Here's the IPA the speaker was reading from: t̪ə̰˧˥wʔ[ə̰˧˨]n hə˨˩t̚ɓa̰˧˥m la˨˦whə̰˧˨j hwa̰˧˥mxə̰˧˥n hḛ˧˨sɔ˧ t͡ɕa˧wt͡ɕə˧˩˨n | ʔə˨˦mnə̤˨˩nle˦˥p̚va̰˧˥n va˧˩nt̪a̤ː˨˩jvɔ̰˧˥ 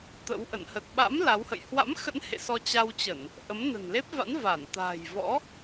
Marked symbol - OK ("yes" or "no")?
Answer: yes